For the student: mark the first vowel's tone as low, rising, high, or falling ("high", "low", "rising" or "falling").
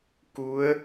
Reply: rising